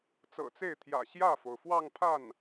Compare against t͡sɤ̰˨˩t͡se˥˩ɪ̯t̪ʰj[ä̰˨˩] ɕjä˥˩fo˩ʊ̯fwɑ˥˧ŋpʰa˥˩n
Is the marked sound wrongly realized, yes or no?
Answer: no